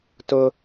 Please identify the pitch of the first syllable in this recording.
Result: high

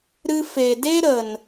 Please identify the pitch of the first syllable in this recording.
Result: high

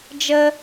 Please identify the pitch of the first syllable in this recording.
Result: high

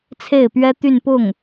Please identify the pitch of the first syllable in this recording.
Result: falling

